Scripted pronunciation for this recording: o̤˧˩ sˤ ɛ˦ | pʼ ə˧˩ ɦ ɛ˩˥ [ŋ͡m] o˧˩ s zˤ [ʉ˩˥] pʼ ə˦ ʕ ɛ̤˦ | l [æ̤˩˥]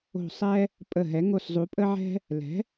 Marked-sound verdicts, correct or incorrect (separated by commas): incorrect, incorrect, incorrect